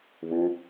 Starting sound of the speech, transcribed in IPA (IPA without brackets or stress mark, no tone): β